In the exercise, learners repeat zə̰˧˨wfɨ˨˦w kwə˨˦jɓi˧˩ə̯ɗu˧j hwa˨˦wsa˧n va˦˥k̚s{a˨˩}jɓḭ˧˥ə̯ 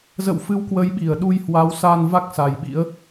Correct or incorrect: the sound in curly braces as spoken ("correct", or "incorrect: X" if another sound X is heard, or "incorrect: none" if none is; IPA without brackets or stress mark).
correct